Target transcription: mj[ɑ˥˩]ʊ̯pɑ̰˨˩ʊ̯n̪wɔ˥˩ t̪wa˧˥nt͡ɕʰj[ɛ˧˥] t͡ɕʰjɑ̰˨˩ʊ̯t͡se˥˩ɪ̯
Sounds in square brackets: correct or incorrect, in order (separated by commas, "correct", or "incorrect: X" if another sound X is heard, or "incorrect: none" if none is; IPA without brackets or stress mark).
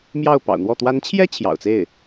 correct, incorrect: ɛ˥